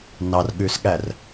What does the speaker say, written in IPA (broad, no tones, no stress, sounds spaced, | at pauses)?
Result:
n ɑ r ɠ ʉ s ɠ æ r